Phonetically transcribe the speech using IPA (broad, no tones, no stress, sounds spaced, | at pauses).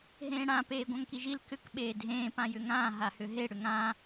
ɦ ẽː ɽ ã p eː ɡʷ ã ŋ k i ʒ i l k ʏ k ɓ eː dʱ ẽː p ã j ʏ ŋ ãː ɦ a h ʏ ɦ e ɽ ʏ ŋ ãː